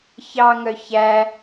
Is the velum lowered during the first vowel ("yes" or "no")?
no